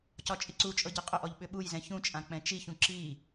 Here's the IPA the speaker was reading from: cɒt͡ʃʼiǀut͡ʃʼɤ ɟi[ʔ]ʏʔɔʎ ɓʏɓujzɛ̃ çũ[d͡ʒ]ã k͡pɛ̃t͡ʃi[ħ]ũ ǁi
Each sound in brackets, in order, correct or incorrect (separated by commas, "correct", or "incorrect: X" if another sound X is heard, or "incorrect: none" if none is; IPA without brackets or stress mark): incorrect: qʼ, incorrect: t͡ʃʼ, incorrect: ç